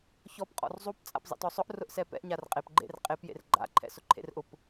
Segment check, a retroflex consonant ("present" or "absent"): absent